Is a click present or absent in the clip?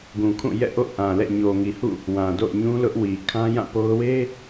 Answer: absent